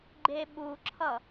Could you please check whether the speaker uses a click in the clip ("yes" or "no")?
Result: yes